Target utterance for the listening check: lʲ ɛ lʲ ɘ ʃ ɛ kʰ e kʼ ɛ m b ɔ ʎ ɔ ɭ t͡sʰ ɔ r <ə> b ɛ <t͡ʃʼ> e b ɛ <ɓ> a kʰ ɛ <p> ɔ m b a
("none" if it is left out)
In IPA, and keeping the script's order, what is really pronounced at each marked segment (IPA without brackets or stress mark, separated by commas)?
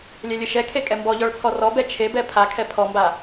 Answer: ɔ, t͡ʃʰ, pʰ, pʰ